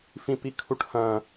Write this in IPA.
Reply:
f ĩ p i kʰ u ʈ h ɐ̃

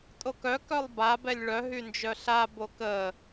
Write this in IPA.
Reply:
tʼ o k œ k œ lˠ b a b ɛ lʲ ɭ œ ɦ y n d͡ʒ œ ɬ a b o k ə

